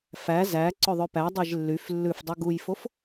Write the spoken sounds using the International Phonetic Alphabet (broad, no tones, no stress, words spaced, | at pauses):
fæ zæ ǀɵðˤøpæ dˤeʒlːyf lːʉfdˤu ɡujfof